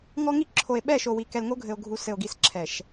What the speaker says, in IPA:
ŋ ɔ˦ ŋ i˦ ǁʰ o˨ e̯ ɓ ɛ˦˨ ʃ o˨ w i˨ k ɛ˨ l ŋ o˦ ɡʱ ɘ˨ o̯ ɡʱ u˨ s ɘ˨ o̯ ɡ i˨ s ǁʰ ɛ˨ ʃ

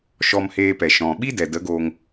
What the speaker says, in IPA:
ʃ ɔ˧ m h eː˧ p ɛ˨ ʃ ɔ̃˨ ɓ i˦ d ɛ˨ d ə˨˦ ɡ oː˧ ŋ

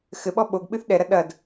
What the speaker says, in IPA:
x ɘ ɓ ɔ ɓ o ɡ ɓ ɨ θ ɗ ɛ ɾ ɐ ɗ ɐ d

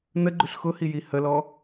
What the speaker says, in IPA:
n ə ɡ͡ǃ ʉ ɬ x ʊ h i j i h ə l ɔ

